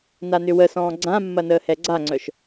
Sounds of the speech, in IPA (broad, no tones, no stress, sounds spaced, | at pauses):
n a n ʏ w ə s ɔ̃ː ɡ͡ǀ ã mː ɐ n əː h ɛ ɡ͡ǀ a ŋ͡ǀ œ ʃ